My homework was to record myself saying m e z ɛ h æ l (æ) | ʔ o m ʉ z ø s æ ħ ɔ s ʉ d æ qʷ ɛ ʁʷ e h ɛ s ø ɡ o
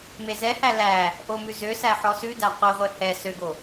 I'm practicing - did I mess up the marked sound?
no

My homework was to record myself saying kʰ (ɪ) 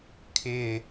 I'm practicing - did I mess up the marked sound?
no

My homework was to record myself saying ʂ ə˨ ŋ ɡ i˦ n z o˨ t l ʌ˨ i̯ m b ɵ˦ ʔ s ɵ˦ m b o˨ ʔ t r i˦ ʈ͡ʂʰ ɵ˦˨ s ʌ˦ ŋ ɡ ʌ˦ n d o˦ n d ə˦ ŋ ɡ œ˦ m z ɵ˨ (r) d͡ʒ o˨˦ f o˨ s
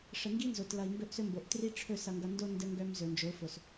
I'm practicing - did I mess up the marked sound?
yes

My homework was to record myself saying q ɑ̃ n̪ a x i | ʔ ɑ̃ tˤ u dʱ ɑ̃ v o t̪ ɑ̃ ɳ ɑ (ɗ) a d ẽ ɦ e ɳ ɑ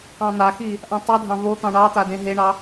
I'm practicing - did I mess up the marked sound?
yes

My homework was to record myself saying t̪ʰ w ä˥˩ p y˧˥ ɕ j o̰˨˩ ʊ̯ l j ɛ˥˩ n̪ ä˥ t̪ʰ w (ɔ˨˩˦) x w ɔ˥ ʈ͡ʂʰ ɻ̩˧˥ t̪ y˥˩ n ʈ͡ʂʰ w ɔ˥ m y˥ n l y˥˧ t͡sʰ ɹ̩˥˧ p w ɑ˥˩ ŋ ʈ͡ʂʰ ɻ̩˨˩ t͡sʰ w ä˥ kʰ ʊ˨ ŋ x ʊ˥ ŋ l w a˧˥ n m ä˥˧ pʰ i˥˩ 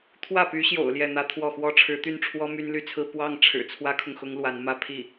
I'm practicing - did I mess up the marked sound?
yes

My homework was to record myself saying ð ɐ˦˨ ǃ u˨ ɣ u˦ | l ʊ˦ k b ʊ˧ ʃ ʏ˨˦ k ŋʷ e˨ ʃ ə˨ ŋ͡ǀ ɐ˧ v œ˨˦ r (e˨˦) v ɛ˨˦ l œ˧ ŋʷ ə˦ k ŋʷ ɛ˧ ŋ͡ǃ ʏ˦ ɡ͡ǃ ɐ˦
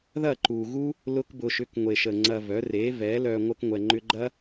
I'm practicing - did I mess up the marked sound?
no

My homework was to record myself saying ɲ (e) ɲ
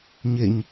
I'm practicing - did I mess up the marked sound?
no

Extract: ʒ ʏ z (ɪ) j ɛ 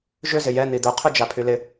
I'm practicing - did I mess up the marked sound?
no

